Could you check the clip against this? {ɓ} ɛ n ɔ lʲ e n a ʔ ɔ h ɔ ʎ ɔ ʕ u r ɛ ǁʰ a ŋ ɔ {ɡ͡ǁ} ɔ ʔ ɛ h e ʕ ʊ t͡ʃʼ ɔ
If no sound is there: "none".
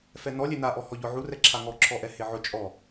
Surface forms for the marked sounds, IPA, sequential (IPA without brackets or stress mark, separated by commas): f, ǁʰ